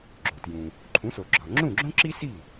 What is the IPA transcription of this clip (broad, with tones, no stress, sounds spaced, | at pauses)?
ɡ͡ǁ o˩ t j ũ˩ | ǃʰ ũ˩˥ s o˩ ɡ͡ǁ ɒ˩ ŋ͡ǁ ũ˥˩ ɡ͡ǁ õ˥ ǁ i˥ s i˥˩